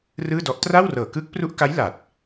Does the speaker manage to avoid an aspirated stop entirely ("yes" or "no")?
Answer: yes